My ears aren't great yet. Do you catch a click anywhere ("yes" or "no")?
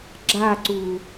yes